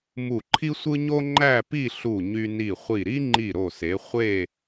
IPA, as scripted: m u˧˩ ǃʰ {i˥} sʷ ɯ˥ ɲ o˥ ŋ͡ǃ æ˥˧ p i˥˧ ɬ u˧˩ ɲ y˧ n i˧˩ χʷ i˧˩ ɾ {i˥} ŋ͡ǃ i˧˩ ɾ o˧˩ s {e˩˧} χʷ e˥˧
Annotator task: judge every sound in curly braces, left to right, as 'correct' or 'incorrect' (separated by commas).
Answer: correct, correct, correct